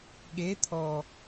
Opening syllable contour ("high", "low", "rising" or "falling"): rising